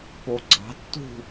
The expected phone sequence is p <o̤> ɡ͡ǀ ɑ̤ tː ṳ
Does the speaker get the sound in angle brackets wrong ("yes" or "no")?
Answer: yes